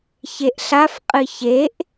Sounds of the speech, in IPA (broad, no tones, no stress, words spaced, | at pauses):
çeʔɬafqʼɨ çeʔ